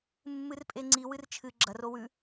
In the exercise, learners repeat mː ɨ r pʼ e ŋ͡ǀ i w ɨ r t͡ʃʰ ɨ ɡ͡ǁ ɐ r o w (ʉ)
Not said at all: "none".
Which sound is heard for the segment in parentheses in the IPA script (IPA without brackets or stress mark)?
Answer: ʉ